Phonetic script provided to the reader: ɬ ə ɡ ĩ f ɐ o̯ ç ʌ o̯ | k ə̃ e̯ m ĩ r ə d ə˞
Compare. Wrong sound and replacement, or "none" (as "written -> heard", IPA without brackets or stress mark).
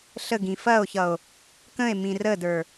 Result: none